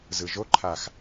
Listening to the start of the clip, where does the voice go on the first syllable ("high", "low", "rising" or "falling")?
low